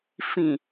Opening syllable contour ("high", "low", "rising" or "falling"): low